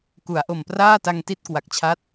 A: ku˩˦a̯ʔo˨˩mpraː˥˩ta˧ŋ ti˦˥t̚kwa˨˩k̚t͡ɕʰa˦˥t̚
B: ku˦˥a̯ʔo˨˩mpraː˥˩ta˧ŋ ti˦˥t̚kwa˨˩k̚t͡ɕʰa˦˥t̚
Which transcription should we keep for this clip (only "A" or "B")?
A